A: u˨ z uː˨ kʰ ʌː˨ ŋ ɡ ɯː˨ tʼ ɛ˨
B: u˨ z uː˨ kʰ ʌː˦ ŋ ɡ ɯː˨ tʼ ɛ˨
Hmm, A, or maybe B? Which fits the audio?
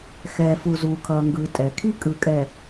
A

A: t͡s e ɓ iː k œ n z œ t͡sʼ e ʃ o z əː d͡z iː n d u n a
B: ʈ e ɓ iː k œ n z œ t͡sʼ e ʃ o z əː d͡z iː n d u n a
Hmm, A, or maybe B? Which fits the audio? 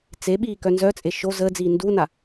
A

